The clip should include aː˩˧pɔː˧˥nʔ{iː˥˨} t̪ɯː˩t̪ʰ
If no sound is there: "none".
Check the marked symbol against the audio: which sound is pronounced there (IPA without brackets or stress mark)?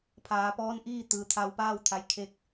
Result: iː˥˨